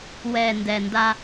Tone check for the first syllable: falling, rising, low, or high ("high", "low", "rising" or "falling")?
low